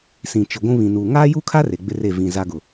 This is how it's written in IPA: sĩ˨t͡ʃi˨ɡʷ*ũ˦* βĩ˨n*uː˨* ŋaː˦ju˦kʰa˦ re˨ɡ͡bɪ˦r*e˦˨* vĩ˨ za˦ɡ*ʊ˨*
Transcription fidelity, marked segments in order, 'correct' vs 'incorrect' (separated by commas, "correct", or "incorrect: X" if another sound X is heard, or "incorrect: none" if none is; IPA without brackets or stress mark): correct, correct, correct, correct